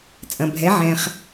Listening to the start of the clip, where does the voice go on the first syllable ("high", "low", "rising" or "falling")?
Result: low